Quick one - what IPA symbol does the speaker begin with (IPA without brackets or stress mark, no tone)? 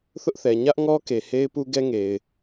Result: θ